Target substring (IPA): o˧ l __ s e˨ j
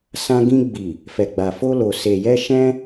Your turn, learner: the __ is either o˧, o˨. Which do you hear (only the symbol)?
o˨